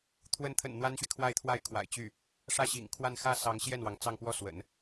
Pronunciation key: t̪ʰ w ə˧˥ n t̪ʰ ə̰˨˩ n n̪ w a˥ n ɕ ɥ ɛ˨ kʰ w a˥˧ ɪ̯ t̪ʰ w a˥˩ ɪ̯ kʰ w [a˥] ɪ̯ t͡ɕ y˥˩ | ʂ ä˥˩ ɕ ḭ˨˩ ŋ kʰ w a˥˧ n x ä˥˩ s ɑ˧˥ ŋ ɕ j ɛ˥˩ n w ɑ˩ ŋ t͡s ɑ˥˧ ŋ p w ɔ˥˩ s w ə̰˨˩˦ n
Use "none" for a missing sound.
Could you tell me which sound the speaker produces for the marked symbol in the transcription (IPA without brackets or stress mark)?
a̰˨˩